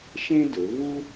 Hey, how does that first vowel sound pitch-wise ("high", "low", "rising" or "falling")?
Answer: high